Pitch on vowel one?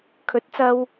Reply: rising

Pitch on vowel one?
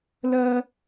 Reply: high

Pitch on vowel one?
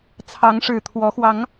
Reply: rising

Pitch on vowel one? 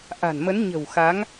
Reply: low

